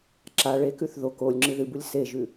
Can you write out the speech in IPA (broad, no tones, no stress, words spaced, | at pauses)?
ǁa ɭekʉθ ðok olʲ ŋ͡ǁɨðɨbulʲ seʒʉ